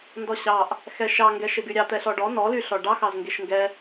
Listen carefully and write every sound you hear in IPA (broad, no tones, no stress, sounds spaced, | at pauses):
n d ɔ ɕ ɑ ʔ | x ɛ ʃ ɑ ŋ ɡ ɛ ʃ e ɡ y ɾʲ ɑ t̪ ɛ ɬ ɔ ɖ ɔ n ɔ l y ɬ ɔ ɖ ɑ x ɑ z ŋ ɡ e ʃ ŋ ɡ ɛ